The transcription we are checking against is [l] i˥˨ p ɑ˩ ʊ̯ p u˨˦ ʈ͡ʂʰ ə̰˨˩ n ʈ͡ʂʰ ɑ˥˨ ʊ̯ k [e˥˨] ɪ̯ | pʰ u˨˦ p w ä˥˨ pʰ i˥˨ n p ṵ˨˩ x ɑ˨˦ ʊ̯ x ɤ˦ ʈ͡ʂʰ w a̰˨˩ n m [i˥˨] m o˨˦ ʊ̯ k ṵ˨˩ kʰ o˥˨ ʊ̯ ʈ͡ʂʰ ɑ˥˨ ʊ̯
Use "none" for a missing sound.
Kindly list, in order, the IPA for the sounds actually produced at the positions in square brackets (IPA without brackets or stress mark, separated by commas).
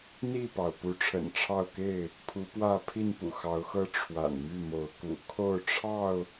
n̪, e˥˨, y˥˨